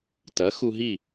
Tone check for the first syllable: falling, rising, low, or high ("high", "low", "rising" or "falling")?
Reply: rising